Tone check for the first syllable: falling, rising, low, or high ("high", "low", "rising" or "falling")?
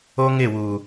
high